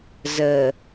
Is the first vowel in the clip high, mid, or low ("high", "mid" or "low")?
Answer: mid